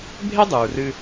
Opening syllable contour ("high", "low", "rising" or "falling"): high